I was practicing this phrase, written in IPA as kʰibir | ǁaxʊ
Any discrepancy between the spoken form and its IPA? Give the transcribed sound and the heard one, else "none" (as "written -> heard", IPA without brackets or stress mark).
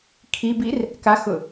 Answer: ǁ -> k